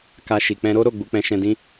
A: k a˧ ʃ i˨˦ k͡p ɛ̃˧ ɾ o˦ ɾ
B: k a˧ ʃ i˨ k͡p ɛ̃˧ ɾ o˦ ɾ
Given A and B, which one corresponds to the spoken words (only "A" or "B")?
B